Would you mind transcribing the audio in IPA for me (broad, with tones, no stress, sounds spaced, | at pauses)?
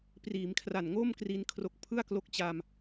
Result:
p r iː˩˦ m kʰ r a˨˩ n ŋ o˥˩ m k r i˦˥ n kʰ r o˦˥ k̚ pʰ ɯ˥˩ a̯ k l o˦˥ k̚ t͡ɕ a˧ m